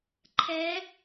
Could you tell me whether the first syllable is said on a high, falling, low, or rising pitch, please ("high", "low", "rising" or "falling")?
rising